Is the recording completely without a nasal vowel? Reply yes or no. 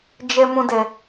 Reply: no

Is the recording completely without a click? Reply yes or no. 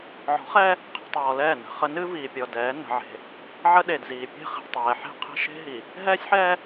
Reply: yes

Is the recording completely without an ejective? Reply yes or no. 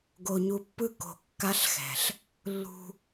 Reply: yes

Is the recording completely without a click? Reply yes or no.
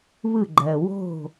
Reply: no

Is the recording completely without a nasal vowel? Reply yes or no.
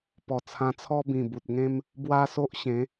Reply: no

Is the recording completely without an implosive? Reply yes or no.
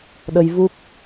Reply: no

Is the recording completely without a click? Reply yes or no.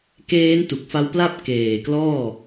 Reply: yes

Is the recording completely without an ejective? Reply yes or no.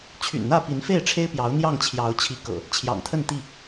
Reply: yes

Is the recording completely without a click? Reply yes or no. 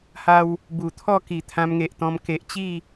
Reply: yes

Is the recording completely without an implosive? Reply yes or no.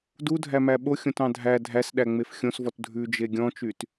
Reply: no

